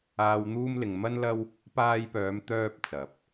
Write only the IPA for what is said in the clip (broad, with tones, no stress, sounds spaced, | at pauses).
aː˨ w n̪ uː˧ m l ɪ˨ ŋ m ɐ˥ n l ɐ˥ w | p aː˧ j p œː˨˧ m t̪ œː˧ p̚ t͡s ɐ˨˥ p̚